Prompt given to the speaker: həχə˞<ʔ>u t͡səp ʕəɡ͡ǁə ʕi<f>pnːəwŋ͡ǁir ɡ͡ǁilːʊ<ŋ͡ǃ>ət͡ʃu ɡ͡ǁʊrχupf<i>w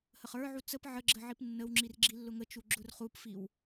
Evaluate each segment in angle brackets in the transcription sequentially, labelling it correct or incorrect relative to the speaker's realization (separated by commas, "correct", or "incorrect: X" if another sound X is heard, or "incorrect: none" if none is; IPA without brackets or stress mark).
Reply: incorrect: ʕ, incorrect: none, incorrect: ŋ, correct